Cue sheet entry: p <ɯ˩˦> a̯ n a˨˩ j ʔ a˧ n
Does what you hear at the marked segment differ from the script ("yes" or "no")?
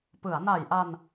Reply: no